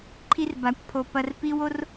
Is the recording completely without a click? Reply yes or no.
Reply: no